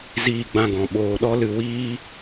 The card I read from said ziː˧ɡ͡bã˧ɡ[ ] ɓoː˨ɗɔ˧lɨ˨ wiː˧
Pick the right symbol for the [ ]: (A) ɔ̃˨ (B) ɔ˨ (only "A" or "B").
A